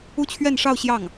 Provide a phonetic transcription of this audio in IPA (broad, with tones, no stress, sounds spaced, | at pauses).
u˥˧ t͡ɕʰ ɥ ɛ˥˧ n ʂ ɑ˥˧ ʊ̯ ɕ j ɑ˥˩ ŋ